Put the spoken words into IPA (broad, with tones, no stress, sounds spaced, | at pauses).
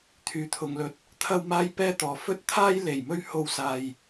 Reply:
t̪ʰ yː˨ t̪ʰ ʊ˨ ŋ l ɵ˧ t̚ | t̪ʰ ɐ˥ w m aː˥ j p ɛː˥ t̪ ɔː˨ f ɵ˥ t̚ t̪ʰ aː˥ j l e˨˩ j m ɵ˥ ɥ h o˧ w s aː˧ j